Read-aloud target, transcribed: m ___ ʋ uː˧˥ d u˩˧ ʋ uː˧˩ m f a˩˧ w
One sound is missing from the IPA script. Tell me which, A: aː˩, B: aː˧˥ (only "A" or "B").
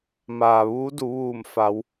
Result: A